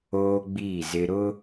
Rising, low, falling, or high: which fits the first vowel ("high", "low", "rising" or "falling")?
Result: high